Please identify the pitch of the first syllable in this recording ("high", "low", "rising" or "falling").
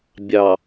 low